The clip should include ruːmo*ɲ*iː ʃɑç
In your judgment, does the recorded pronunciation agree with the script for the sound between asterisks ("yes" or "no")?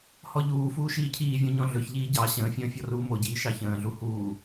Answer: no